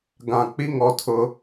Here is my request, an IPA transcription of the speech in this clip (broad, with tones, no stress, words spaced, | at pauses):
ɡã˨k͡pi˦ ŋɔ˦tʰʊ˦